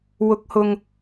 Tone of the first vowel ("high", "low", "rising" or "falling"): rising